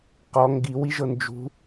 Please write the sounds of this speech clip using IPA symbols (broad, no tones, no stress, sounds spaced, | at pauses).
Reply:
q ɔ ŋ ɡ i w i ʒ ɤ n d͡ʒ ṳ